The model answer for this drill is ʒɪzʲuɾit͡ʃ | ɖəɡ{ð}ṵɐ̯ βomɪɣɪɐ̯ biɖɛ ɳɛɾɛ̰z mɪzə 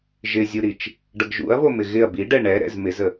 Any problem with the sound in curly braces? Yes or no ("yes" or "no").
yes